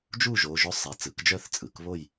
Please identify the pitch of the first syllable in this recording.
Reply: falling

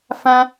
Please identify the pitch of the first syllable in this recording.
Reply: high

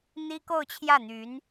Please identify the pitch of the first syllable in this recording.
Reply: high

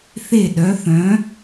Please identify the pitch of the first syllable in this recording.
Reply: falling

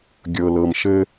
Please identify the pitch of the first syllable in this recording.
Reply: low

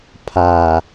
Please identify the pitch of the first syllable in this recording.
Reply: low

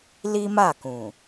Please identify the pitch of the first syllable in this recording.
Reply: high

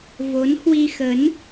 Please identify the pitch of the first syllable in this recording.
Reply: rising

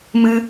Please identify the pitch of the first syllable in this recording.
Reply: high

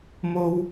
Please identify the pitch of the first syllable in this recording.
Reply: high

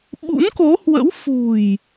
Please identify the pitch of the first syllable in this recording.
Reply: rising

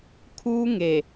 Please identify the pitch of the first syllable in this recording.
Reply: high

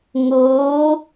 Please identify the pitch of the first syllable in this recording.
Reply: rising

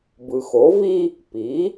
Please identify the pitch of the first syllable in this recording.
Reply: low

